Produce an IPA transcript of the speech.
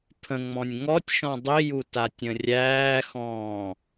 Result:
pʰ ə̃ ŋ͡m ɔ̃ nʲ ŋ ɔ tʲ ʃ ɔ̃ dˤ i j u t a tʲ ə̃ rʲ æː x ɔ̃ː

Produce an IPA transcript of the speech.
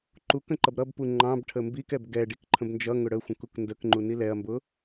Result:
ǃ u k ə̃ ǃ ʌ b ɾ ʌ b p u ŋ͡ǃ ɑ̃ b ʈʰ ə m b i k ɛ b ɡ ɛ ɖ i k ǃʰ ə̃ b n d͡ʒ ʌ ŋ ʊ ɽ ə xʷ ə̃ k u k n d ə k ŋ͡ǃ u n i l ɛ ɐ̯ m b ʊ

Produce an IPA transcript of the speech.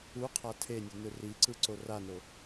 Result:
u qʰ a tʰ e nʲ u n ɯ r i ǀ ɯ ǀ o r a n o

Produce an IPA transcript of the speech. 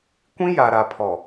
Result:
kʷ ĩ˦ j a˨ ɾ a˨ pʰ ɔ˨

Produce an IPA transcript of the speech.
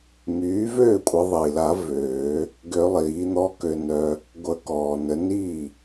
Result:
m yː˩˥ v øː˥˩ kʷʼ ə˨˩˦ ðˤ i˩ l a˨˩˦ v øː˨˩˦ | ɡ ø˨˩˦ lˠ iː˩˥ n̪ ɔ˦˥ k ø˧ n œ˧ | ɡʷ ə˨˩˦ k ɔː˩ n ə˨˩˦ n i˥˩

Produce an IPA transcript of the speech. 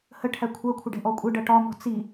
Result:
h ə ʈʰ æ kʷʰ ɜ kʷʰ ə ɖ ɛ̤ ʔ ɔ kʷʼ ə ɖ ʌ ʈ ɒ m ɔ̤ t͡s i

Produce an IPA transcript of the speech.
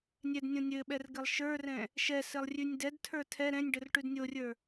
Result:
nʲ ɛ d nʲ õ nʲ ɘ ɓ ɛ r ɡ ɘ lˠ ʃ ə˞ r ɛ̃ | ʃ ɛ s ɘ lˠ rʲ ʉ nʲ d ɛ d tʰ ə˞ tʰ ɛ ɾ ɛ̃ nʲ ɖ ɘ r ʈ ʉ d nʲ o rʲ ə˞

